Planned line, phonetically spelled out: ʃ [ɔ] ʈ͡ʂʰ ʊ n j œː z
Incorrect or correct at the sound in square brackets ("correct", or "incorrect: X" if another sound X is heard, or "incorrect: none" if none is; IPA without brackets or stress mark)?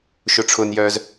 incorrect: ʊ